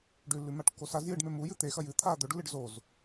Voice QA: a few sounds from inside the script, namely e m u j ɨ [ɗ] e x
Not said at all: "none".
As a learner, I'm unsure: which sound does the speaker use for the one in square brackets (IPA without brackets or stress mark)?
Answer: t̪